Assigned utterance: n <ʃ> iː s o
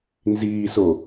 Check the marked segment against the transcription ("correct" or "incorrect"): incorrect